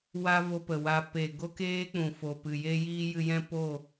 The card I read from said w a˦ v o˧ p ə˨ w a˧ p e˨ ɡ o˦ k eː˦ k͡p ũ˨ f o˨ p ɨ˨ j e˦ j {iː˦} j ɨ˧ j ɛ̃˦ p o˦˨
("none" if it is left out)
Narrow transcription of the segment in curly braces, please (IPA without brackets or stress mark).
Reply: iː˦